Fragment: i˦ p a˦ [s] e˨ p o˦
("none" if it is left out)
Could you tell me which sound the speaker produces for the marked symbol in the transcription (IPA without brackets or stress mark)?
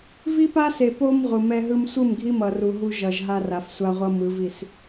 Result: s